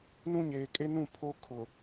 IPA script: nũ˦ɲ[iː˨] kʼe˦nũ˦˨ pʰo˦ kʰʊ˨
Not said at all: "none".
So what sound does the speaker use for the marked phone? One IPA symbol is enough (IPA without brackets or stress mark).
eː˨